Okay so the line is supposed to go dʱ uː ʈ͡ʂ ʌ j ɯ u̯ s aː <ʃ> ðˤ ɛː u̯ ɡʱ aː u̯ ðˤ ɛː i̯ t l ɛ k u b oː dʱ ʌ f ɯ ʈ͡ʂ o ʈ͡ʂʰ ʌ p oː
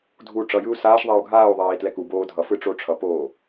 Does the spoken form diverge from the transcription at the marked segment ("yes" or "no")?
no